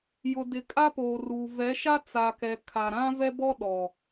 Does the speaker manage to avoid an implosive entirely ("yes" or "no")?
no